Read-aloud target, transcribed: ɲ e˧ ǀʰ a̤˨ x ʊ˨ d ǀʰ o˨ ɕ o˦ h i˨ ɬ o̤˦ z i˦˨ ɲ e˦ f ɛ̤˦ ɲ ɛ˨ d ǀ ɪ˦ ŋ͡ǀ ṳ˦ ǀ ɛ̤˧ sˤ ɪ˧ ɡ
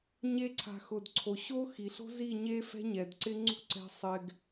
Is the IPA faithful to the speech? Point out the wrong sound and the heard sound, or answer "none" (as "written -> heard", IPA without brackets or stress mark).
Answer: h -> x